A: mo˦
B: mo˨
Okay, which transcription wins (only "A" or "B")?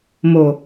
B